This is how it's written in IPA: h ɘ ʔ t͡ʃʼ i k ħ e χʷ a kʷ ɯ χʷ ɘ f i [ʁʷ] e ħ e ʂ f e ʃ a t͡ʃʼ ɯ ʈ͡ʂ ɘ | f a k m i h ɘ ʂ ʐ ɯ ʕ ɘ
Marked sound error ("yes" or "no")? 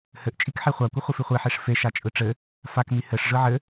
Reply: yes